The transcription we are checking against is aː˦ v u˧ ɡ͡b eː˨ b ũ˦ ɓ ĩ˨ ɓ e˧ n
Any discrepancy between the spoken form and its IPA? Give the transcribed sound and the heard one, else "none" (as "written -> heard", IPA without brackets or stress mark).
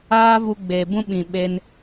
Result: none